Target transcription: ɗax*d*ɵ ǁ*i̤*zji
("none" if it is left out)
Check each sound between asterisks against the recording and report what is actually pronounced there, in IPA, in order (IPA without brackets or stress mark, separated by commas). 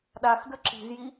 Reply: d, i̤